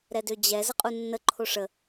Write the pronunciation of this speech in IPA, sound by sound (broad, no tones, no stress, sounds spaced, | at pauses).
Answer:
ɾ ɛ d ø d͡ʑ ɛ z ə qʼ u nː ə ǃʰ o ʂ ə